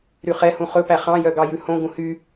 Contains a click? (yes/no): no